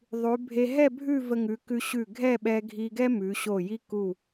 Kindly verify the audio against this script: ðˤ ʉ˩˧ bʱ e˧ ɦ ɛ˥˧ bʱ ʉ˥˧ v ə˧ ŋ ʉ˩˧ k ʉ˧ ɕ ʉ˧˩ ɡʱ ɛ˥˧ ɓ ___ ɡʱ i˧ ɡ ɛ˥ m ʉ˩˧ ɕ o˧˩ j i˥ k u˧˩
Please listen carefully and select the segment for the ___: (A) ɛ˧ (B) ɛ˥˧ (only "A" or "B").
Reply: A